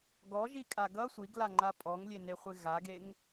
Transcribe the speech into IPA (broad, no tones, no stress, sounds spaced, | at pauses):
ɡ ɔ ʒ i kʼ a ɡ ʌ sʷ i ɡ l a ŋ͡ǃ a pʼ ɔ ŋ lʲ e n e χʷ ɪ ɣ a ɡ e ŋ